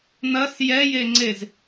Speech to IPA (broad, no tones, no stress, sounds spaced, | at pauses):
n̪ ɐ s j ɛ j e ŋ͡ǀ e z